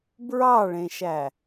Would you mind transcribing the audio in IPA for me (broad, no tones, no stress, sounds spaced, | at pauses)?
b ɹ ɑ ɭ ẽ ʃ æ